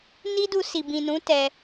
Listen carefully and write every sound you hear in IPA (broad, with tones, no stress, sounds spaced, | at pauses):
n i˦ d u˧ s i˨ b ĩ˨ n ũ˨˦ t ɛ˧